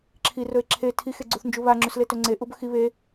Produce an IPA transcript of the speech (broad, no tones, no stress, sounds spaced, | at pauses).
ǁʰ i r ɵ e̯ ǁʰ e tʰ i x e ɡ͡ǀ u θ n d͡ʒ u β a ŋ͡ǁ ʉ s l e t ɵ ŋ͡ǀ e ʔ u b ɵ x i β e